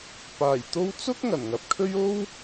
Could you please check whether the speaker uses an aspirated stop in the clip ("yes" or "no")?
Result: yes